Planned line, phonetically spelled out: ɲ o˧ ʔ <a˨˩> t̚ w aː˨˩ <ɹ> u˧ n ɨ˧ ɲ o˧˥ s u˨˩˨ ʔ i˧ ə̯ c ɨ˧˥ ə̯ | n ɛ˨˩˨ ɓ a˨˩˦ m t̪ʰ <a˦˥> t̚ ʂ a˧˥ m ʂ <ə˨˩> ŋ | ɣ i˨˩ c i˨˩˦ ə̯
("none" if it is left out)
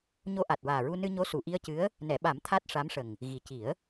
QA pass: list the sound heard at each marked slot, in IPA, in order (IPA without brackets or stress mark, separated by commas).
a˨˩, ɹ, a˦˥, ə˨˩